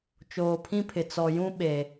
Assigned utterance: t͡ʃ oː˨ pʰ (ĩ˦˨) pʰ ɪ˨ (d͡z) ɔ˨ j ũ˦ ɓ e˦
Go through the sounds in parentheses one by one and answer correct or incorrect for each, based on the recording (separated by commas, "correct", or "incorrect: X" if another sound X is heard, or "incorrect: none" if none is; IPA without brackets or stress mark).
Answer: incorrect: ĩ˦, incorrect: t͡s